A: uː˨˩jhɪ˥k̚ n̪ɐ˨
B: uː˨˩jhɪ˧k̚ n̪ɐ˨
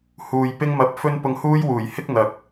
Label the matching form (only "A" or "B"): A